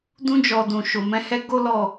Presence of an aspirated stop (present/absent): absent